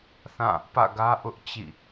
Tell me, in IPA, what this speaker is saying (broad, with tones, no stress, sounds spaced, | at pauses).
θ ã˦˨ | p ä̰˦˨ ɡ ä˦ ʔ ʊ˦ ʔ t͡ɕ ḭ˦˨